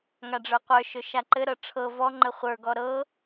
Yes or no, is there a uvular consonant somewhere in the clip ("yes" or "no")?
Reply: yes